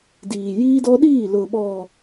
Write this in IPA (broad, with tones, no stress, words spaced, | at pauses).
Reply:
diː˨jiː˦dɔ˦ ɗiː˦˨lʊ˨ɓɔ˨